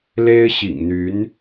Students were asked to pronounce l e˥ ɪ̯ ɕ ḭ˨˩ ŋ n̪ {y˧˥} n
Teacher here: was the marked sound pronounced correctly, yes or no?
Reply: yes